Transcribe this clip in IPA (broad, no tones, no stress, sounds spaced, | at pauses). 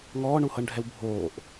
ŋ ɔː ɳ u h ɤ ɳ ɖʱ ɛ w bʱ oː ʔ